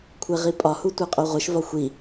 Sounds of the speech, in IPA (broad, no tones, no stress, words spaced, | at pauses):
kʷʰeʁipʼɒhu tʷæqʼoʁʷeʃvɒ xʷi